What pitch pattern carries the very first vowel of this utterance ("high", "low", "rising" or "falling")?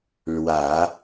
low